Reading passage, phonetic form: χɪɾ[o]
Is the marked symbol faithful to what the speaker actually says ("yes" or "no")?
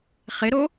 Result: yes